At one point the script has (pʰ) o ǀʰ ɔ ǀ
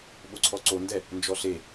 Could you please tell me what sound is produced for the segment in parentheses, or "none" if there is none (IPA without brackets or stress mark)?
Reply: ɓ